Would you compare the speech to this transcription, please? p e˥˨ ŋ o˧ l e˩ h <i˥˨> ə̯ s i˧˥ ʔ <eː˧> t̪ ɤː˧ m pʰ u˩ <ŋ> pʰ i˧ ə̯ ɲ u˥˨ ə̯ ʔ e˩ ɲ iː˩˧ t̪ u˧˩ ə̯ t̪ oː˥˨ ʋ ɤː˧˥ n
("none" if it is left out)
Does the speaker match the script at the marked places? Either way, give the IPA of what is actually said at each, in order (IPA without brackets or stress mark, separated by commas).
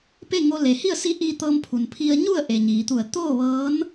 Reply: i˥˨, iː˧, n